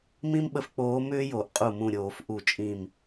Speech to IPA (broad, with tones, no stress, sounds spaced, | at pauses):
m ĩ˥ m ɓ ə˧˥ f k͡p oː˧˥ m ʏː˥ j o˧˩˧ ʔ qʼ u˧˩ m ũ˧˩ ɾʲ oː˧˩˧ f ʔ u˧˩˧ t͡ʃʼ ĩ˧˩ m